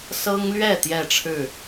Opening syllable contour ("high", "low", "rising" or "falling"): high